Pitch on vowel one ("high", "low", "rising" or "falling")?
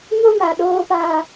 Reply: high